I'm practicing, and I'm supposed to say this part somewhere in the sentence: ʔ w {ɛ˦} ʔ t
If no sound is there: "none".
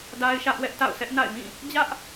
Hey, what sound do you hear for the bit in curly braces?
ɛ˦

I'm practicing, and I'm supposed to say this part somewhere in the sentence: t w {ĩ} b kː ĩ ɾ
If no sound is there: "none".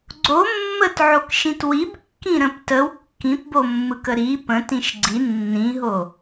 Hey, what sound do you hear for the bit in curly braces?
i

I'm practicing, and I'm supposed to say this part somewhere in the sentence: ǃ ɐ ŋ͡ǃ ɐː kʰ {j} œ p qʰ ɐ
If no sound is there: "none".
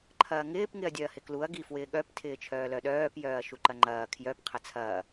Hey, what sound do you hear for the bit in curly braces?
j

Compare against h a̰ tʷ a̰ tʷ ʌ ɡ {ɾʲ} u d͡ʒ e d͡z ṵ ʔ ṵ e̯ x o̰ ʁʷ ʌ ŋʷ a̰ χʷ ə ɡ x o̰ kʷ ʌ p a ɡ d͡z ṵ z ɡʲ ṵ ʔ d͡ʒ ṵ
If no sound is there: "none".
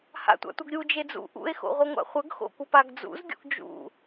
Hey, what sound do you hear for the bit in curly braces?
ɾʲ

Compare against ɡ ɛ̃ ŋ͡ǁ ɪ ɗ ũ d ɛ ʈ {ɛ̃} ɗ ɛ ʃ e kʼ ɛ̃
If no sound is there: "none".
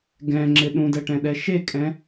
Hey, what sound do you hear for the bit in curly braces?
ɛ̃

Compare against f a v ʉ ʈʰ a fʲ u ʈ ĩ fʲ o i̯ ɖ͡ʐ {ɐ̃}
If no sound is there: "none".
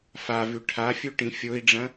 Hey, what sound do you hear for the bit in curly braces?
ɐ̃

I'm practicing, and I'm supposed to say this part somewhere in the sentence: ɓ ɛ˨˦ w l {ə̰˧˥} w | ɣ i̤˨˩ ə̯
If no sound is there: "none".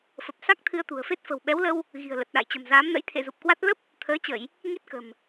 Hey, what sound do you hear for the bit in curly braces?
ə˧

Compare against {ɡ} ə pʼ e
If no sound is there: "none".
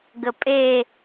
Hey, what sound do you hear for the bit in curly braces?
ɡ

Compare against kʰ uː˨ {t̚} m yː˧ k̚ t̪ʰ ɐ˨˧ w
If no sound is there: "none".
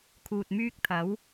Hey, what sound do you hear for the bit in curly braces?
t̚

